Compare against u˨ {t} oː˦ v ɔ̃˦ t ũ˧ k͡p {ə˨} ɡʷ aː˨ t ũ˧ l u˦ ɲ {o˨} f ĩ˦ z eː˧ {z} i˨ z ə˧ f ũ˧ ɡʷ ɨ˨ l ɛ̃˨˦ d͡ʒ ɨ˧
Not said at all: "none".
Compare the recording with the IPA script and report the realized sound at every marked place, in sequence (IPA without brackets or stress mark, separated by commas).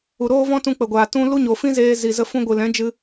ɾ, ə˨, o˨, z